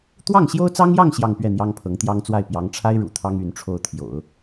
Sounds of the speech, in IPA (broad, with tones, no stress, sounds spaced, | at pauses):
t̪ w ɑ˥˩ ŋ ɕ j o˥ ʊ̯ t͡s ɑ˥ ŋ j ɑ˥˧ ŋ ɕ j ɑ˥˧ ŋ p ɥ ɛ˥˩ n̪ j ɑ˥ ŋ pʰ ɤ˧˥ ŋ t̪ j ɑ˥ ŋ t͡s w a˥˩ ɪ̯ p j ɑ˧˥ ŋ ʈ͡ʂʰ a˥ ɪ̯ ɻ ṵ˨˩ t̪ʰ ɑ˥ ŋ y˧˥ n ʈ͡ʂʰ o˥˩ ʊ̯ t̪ʰ j o̰˨˩˦ ʊ̯